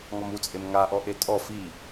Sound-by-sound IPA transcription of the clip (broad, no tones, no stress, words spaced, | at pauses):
ŋɔmut͡sʼem ŋaʔɔ ʔetʼɔ fi